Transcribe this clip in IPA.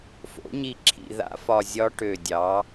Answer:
fo̰˨˩˦ɲi˧˩ǁʰḭ˧˩ ða̰˧˥fɒ˧˩zʲɒ˧˥ ʈø˧˩dʲɑ˩˥

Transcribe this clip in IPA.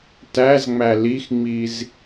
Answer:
tæzŋ͡mæ lixŋ͡miz

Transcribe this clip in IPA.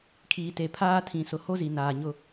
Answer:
kʰiː˨te˨pʰaː˦ tʰĩ˨sʊ˨ ho˦zi˨ naː˨ɲʊ˦

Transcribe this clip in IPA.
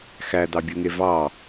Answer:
xæd̪ɑbʲoŋe vɑ

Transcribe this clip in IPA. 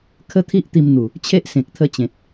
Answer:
kʰə˦t̪ʰi˦ʔ t̪i˧mn̪u˨˩ | t͡ɕʰe˦ʔsẽ˨k̚t̪ʰə˧t͡ɕẽ˨t̚

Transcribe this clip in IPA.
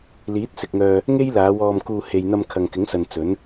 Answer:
liː˨˥t̚sɪ˨k̚ŋœː˧ | ŋe˥jlaː˨˧wɔː˧mkuː˧ he˨jn̪ɐ˧m kʰɐ˨ŋkɪ˨˥ŋsɐ˨n t͡sɵ˨˥n

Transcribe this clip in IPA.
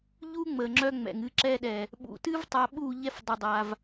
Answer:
ʎu˦ ŋ͡məː˨ŋ͡ǁœ˦ŋ͡mɛ̰˨ŋ ɨ˧ ǁɛ˧ɗɛ˨ | ɓṵ˨tɨ˦v tˤa˧ɓuː˦˨ʎɛ˦f dˤə˧dˤa˧v

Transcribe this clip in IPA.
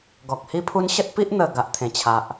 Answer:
ɡɔ˨k̚hi˦pʰu˦n ɕə˦t̚pi˦ʔ n̪ə˨˩ ɡa˨ʔt̪ʰẽ˨˩t͡ɕʰa˨ʔ

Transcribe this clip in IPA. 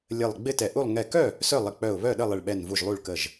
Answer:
lʲə˧˩lˠ ɡ͡bɪ˥˨tɛ˧˩ ʔu˥˨lˠ ŋɛ˧˩kœ˥˨ | sœ˥˨ lˠɪ˧˩ k͡pœ˧˩ʊ̯βœ˥˨ɗə˥˨ lˠɪ˧˩ɭɓɛ˧˩nvu˧˩ʒ lˠu˥˨ɭkə˥˨ʒ

